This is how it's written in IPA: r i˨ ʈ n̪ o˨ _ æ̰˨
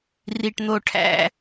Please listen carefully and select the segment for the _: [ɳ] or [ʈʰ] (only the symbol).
ʈʰ